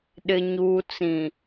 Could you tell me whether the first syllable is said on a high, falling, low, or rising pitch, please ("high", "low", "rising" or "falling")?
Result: low